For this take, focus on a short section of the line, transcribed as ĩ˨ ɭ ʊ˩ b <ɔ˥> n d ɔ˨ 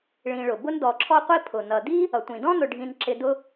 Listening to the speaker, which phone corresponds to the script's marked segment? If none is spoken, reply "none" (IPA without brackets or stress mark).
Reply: ʊ˥